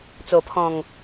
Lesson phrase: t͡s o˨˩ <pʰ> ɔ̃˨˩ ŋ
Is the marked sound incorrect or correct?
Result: correct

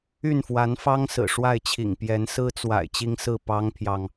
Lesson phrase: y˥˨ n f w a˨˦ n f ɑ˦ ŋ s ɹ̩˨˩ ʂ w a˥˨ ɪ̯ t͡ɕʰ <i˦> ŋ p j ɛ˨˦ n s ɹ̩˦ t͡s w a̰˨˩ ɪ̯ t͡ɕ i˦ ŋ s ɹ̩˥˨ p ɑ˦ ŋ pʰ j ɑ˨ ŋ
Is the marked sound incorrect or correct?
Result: incorrect: ḭ˨˩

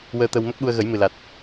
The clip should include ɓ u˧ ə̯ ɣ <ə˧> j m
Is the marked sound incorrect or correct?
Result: incorrect: ə˨˩˦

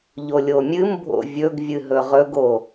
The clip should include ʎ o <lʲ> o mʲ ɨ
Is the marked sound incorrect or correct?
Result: correct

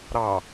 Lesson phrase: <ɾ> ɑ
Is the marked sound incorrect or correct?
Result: correct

